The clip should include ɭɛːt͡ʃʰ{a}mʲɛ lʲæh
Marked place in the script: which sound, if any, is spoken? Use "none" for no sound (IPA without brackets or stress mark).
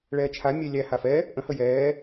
a